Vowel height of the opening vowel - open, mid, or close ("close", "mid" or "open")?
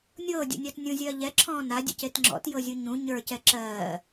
mid